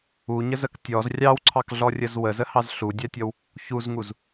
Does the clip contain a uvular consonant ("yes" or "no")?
no